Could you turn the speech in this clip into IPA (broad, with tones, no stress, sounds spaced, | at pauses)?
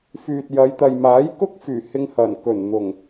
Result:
f yː˨ t̚ j ɐ˨˧ j t̪ ɐ˨ j m aː˨˥ j k ʊ˥ k̚ f yː˨˩ h ɪ˧ ŋ h ɐ˨˩ n k ɵ˨˩ n n̪ ʊ˨˩ ŋ